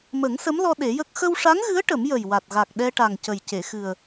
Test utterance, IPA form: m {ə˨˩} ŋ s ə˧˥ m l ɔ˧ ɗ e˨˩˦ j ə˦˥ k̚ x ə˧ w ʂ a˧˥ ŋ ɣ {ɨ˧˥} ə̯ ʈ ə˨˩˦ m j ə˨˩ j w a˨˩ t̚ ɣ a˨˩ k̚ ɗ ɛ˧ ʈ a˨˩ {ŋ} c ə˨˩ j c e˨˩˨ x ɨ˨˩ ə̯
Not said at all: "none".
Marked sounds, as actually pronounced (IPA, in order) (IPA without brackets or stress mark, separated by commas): ə˨˩˦, ɨ˧˥, ŋ